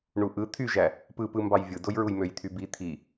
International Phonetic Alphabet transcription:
ɳ u ʔ ɯ t̪ʰ y ʒ æ | p ɯ p ɯ m b ɑ j vʲ ɯ d o j ɹ u j m ø j t̪ʰ y b i t̪ʰ i

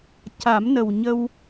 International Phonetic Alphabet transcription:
c a˨˩˦ m n ə˨˩ w ɲ ə˧ w

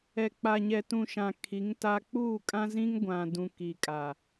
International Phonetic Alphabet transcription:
ɛ˨ k͡p a˨ ɲ ɛ˨ t ũ˨ ʃ ã˨ kʰ i˨˦ ŋ t a˦ k͡p uː˦˨ kʼ ã˦ z ĩ˦ ŋ ɡʷ ã˨ d ũ˨ k i˨ kʼ a˨

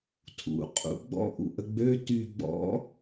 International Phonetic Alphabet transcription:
tʰ ṵ qʼ ṵ ɡ͡b ɔ̰ ʔ ṵ ʔ ə ɡ͡b ø t y ɡ͡b ɔ̰

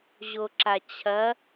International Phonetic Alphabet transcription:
ʑ o ǁ a t͡ɕʰ ɐ

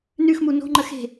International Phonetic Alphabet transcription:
n ʉ x m u n o̤ ŋ͡ǃ ə x e̤

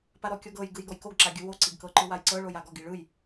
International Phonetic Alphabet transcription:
p a ɾ ɔ kʲ ɔ ɡ ɤ j ɡ ɯ j ɡ ɔ j k o ɡ ǁ a ɡʲ ɯ w o ǀ i ɡ k ɤ ǃ ɯ w a j ǀ ɤ ɭ o j a ɡ ɔ ɡ i ɭ ɯ j

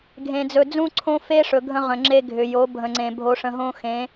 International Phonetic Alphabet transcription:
ɡʱ ẽ˨ d͡z ɵ˨ d͡z ũ˦ ǀʰ õ˦ f e˦ ʂ ɵ˨ ɡʱ ə̃˦ ʁ ə̃˨ ŋ͡ǁ e˦ ɡʱ ʏ˨ j o˨˦ bʱ ə̃˨ ŋ͡ǀ ẽ˨ bʱ o˨ ʂ ə̃˨ ɦ õ˦ x ẽ˨˦

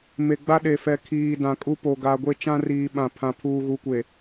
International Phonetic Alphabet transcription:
m e˨ ɡ͡b a˦ ɗ e˨ f ɛ˨ kʰ iː˨ d ã˨ kʼ u˦ p o˨ ɡ a˨ ɡʷ e˦ t͡ʃ ã˦ r iː˨ ɓ ã˨ pʰ ã˨ pʰ uː˨ ɣ u˨˦ kʷ e˨

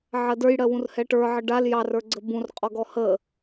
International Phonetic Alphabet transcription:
ʕ ɜ d ə˞ j ɽ ɜ w ũ r h ɛ ʈ ə˞ ʕ ə ɖ a l j ɑ r ə˞ ɡ͡ǀ ə b ũ r qʼ ɔ ɡ ɔ h ə

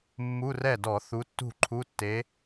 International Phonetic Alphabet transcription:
mː u˧˥˧ r ɛ˥˩ d ɔ˧˩˧ θ u˨˥ tː ṳ˥˩ ǃʰ u˧˥˧ tː e˨˥

